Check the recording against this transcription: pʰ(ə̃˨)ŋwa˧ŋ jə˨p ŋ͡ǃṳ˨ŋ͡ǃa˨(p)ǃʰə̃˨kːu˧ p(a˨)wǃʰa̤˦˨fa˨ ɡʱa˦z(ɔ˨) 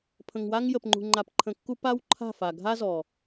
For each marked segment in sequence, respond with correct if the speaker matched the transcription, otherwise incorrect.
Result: correct, correct, incorrect: a˦, correct

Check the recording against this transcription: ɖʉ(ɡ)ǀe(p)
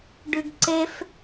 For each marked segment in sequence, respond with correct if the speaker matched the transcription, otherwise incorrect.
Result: correct, incorrect: f

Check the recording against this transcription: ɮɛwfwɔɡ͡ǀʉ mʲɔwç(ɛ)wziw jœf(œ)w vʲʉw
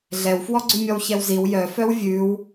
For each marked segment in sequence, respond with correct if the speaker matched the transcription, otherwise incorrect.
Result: correct, correct

